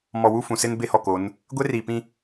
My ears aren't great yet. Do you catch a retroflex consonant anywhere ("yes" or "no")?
no